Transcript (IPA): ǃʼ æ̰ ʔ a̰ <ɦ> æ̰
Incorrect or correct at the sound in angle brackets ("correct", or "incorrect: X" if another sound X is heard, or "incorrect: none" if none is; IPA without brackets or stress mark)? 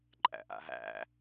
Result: correct